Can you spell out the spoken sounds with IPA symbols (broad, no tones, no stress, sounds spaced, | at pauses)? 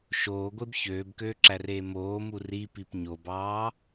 ʃ oː ɡʷ e b ç øː b k øː ǁ æ r eː m oː m u r i p i p ɲ o b ɑː